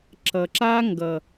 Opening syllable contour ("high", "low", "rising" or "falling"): low